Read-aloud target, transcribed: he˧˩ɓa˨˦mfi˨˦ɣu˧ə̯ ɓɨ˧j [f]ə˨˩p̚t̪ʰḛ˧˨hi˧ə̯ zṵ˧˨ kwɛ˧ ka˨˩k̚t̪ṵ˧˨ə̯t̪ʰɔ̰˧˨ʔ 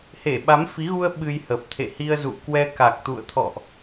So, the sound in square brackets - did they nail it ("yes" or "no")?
no